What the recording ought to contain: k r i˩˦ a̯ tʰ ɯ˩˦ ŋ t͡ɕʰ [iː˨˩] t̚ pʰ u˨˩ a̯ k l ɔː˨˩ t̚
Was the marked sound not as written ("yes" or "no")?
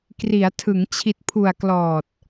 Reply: yes